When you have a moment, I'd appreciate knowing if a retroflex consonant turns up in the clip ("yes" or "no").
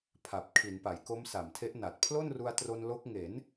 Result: no